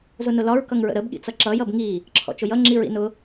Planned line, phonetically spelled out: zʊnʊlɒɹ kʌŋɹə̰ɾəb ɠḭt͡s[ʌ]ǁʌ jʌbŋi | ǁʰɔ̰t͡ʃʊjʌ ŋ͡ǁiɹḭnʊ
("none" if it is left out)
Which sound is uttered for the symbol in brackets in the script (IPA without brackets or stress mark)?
ʌ